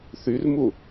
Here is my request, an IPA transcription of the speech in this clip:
θ y r m u

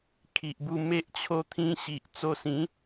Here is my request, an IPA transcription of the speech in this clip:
kʰ i˨ ʔ b u˧ m e˦ ʔ t͡ɕʰ o˦ t̪ʰ ĩ˧ ɕ i˨ ʔ t͡s o˧ s ĩ˨˦

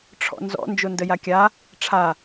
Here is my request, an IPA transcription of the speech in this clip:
ʈ͡ʂʰ ɔ̰ n z ɔ̰ n d͡ʒ o n d ə j a kʲ a | ʈ͡ʂʰ a

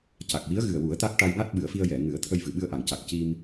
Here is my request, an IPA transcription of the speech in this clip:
c a˨˩ k̚ w i˧˥ ə̯ ɣ ɨ˨˩ ə̯ w u˨˩˦ ə̯ t̪ a˦˥ k̚ ʈ a˧ j ŋ a˦˥ t̚ ɓ ɨ˨˩˦ ə̯ f i˧ ə̯ j ɛ˨˩˨ ŋ ɨ˨˩˦ ə̯ t̪ʰ ə˧ j v ɨ˨˩˨ ɓ ɨ˧ ə̯ ʔ a˨˩˨ ŋ c a˨˩ k̚ c i˧ m

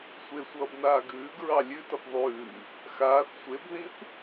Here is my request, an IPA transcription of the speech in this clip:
sʷ e sʷ ʌː b n aː ɡ ʉː ɡ ɹ ɑ lʲ ʉ t ʌ p ðˤ ʉː | x aː θ sʷ e b ð ĩ θ

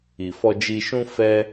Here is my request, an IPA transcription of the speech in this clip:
i˨ f ɔ˧ d͡ʒ i˧ ʃ ũ˦ f ɛ˦

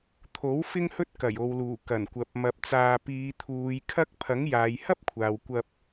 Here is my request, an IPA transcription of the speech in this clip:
t̪ʰ o˨˥ w f ɪ˥ ŋ h ɵ˥ t̚ k ɐ˨˩ j o˨ w l uː˨˩ k ɐ˨˩ n kʷ ɐ˨ p̚ m ɐ˧ p̚ t͡s aː˧ p iː˨˧ t̪ʰ uː˨˧ j kʰ ɐ˥ k̚ pʰ ɐ˨˥ ŋ j aː˨˧ j h ɐ˥ p̚ kʷʰ aː˨ w kʷ ɐ˧ p̚

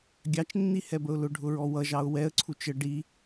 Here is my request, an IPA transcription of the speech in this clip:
ɡʲ ɑ t͡ʃ nː i h ɛ b ə ʊ̯ l ʊ ɖʱ ʊ ɹ ɔ w ʌ ʒ ɑ ʊ̯ w ɛ ə̯ ǀʰ u t͡ʃ ə ɖ i

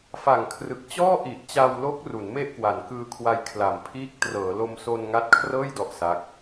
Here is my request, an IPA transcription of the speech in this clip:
f a˨˩ ŋ kʰ r ɯ˨˩ k̚ t͡ɕ ɔː˥˩ ʔ i˨˩ ʔ t͡ɕ a˧ w l o˦˥ k̚ r u˩˦ n m e˥˩ ʔ k w a˩˦ n k ɯː˧ kʰ w a˧ j kʰ l a˩˦ m pʰ iː˦˥ k̚ t r ɤː˩˦ l o˧ m s o˧ n ŋ a˦˥ t̚ kʰ r ɤː˥˩ j d ɔ˥˩ ʔ s a˦˥ k̚

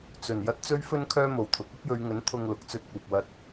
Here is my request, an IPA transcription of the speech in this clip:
t͡s ɵ˨˩ n j ɐ˥ t̚ t͡s ɵ˥ ɥ f ɵ˥ n kʰ œː˥ m o˨˩ w t̪ʰ ʊ˨˥ k̚ ɐ˥ p̚ j ɵ˨˧ ɥ ŋ ɵ˨˥ n t̪ʰ ʊ˧ ŋ l ʊ˨˥ k̚ t͡s ɵ˧ t̚ kʷ ɐ˨ p̚ w ɐ˧ t̚

